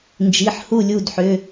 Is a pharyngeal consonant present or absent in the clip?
present